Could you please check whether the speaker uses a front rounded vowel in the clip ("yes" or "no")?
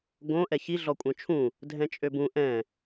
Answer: yes